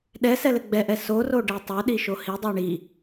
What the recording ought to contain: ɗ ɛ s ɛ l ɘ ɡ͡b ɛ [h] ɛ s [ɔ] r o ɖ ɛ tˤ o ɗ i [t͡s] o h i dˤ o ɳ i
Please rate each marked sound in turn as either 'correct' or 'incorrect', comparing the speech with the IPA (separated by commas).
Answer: incorrect, incorrect, incorrect